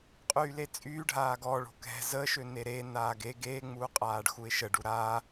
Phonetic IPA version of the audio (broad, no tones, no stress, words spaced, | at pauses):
qʼyːlet͡sʼyːɖʱaːɡ ɔ ɭo̤kɛ̤ zə ʃøneɾeː naːɡe ɡeːŋ͡muːqʼaːɖ xuɪ̯ʃəɖu ɾa